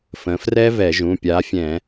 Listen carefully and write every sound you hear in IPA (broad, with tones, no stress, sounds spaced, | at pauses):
f ə̃˩˧ f r ɛ˦˥ v ɛ˧˩˧ ʒ ũ˩˧˩ pʲ a˨˥ fʲ ɛ̃˧˩˧